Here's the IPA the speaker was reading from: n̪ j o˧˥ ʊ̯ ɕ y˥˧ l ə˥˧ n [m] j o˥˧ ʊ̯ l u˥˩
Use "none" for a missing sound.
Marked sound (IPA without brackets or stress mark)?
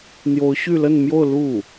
m